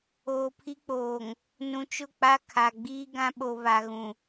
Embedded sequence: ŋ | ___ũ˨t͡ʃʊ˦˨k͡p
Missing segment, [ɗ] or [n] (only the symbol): n